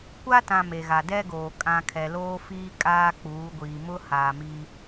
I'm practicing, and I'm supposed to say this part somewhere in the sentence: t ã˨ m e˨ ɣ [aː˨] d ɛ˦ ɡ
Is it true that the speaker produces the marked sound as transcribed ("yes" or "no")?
no